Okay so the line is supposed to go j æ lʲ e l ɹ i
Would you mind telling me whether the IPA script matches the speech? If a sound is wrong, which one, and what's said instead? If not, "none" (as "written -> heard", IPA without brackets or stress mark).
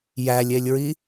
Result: l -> lʲ